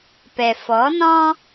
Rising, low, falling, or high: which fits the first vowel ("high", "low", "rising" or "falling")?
low